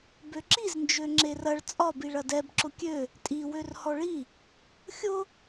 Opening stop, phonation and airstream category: plain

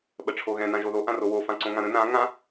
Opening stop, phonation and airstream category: implosive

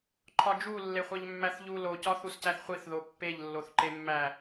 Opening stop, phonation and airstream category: click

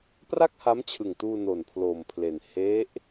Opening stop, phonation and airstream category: plain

